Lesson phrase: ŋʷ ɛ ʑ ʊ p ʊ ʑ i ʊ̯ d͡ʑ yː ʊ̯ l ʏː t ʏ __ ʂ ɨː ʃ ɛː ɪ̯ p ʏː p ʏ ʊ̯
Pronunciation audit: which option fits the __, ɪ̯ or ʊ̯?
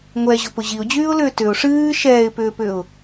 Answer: ʊ̯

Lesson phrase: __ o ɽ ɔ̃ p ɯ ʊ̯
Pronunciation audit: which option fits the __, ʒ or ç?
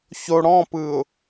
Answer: ç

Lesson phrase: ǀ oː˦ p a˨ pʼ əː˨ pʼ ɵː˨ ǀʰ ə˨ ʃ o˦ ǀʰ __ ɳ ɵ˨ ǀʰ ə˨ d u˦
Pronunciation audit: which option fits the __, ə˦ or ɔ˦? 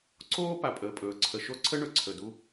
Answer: ə˦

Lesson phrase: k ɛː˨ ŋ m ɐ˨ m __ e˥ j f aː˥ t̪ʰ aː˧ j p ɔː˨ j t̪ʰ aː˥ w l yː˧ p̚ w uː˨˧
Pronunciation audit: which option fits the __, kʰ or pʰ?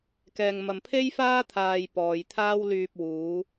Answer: pʰ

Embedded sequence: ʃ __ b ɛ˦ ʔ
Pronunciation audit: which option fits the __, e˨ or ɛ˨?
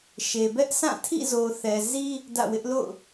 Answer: e˨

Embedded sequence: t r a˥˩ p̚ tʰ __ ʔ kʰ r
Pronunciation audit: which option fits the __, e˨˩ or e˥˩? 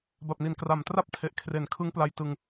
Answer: e˨˩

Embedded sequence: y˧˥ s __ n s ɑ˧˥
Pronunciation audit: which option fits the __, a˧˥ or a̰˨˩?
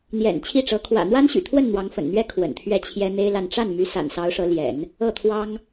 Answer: a̰˨˩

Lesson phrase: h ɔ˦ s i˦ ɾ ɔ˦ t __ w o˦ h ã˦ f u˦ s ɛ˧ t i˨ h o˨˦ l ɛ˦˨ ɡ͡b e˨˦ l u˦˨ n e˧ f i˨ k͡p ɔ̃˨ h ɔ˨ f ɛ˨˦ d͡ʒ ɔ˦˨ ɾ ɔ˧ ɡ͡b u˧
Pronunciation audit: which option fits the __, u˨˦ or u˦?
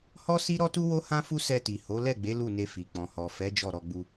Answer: u˦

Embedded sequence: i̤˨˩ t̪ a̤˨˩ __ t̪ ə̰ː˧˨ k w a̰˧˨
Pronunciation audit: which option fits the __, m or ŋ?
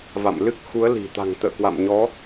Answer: ŋ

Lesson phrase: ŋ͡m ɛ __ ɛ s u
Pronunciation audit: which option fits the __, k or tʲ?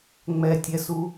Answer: tʲ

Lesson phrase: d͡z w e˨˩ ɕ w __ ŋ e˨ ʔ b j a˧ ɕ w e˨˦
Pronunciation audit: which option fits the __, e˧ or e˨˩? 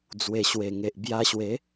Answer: e˨˩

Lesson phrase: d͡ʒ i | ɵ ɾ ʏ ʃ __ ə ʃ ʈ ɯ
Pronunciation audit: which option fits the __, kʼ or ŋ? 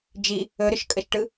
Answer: kʼ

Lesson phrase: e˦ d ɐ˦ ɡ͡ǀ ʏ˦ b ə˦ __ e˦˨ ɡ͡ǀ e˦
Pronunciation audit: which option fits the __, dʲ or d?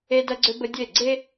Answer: dʲ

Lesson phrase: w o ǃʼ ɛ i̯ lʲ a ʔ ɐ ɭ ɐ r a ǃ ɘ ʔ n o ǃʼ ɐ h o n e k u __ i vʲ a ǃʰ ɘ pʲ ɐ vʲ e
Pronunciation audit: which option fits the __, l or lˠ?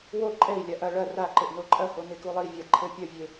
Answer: lˠ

